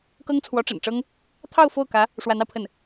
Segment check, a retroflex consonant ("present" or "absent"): present